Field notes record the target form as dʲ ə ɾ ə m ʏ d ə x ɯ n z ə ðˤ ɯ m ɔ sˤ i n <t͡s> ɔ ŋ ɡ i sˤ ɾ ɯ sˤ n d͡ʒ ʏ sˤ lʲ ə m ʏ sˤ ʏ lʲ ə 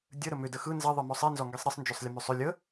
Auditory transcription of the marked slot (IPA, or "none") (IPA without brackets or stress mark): z